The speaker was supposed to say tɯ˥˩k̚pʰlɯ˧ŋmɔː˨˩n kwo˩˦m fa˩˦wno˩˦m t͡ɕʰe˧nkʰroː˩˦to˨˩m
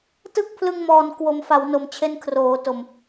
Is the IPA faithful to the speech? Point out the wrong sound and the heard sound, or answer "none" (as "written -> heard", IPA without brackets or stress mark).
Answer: none